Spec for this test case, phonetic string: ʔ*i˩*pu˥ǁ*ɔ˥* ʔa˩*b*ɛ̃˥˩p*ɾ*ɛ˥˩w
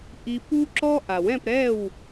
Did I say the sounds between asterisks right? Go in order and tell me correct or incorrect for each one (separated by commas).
incorrect, correct, incorrect, correct